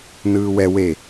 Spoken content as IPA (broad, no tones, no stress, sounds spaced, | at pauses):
n ɯː w ɛ w e